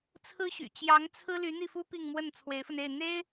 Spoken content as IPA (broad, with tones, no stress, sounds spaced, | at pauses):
t͡sʰ ɹ̩˥ ɕ y̰˨˩ t͡ɕ j ɑ˧˥ ŋ t͡sʰ ɹ̩˥ l y˧˥ n̪ i˥˩ f u˥ p i˥˧ ŋ m w ə˥˩ n t͡sʰ w e˧˥ ɪ̯ f ə˧ n e˥˩ ɪ̯ n̪ e˥ ɪ̯